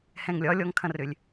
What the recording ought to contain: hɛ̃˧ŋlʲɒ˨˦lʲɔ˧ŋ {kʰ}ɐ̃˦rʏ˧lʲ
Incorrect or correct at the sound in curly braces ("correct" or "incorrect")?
correct